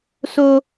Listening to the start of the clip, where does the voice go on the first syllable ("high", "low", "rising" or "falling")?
high